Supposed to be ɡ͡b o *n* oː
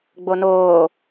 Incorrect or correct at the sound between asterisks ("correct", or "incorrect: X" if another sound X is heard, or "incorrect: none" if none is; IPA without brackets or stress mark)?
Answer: correct